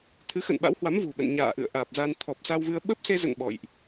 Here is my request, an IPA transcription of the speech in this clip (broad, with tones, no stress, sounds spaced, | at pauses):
t̪ʰ ɨ˨˦ x ə̰˧˨ n ɓ a̰˧˥ w h w a˨˦ m v ṳ˨˩ ɓ ə̰˧˨ n ɲ a̰ː˧˨ ʔ ɨ̰˧˨ ə̯ ʔ aː˨˩ p̚ z a˧ n t̪ʰ ɔ˨˩ p̚ s a˧ w v ɨ˧ ə̯ ɓ ə˦˥ p̚ s e˧ z ə̰˧˨ n ɓ ɔ̰˧˨ j ʔ